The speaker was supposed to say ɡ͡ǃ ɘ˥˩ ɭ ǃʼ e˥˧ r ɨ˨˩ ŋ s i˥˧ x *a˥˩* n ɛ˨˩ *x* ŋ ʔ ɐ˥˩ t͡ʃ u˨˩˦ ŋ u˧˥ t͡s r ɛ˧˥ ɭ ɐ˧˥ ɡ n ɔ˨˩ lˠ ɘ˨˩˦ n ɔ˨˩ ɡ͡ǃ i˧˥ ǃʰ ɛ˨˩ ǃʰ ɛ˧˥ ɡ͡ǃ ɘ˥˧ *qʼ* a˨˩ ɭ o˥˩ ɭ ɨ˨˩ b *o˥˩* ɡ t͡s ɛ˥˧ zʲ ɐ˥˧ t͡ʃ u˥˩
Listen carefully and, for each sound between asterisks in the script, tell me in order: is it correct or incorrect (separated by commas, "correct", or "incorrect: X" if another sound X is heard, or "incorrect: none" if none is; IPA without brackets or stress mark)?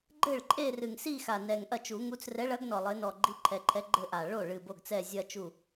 incorrect: a˨˩, incorrect: none, incorrect: ʔ, correct